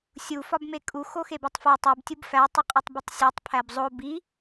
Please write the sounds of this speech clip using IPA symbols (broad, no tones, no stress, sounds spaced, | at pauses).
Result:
sʲ u f ɒ b m e kʼ u x o x e b e tˤ f u tˤ e b tʲ u b f æ tˤ i qʼ ɒ tˤ b e tˤ sʲ æ tˤ pʰ æ b zˤ o b i